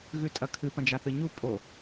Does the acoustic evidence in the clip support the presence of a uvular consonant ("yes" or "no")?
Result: no